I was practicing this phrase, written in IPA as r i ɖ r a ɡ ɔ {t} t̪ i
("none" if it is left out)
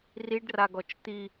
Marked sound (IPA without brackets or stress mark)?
t͡ʃ